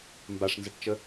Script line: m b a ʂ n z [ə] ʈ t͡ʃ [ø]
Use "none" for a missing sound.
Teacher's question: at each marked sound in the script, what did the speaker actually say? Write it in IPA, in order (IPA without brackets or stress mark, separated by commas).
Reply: ə, ə